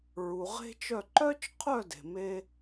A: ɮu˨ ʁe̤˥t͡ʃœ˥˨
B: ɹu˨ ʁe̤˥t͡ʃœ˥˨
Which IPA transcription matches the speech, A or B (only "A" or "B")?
B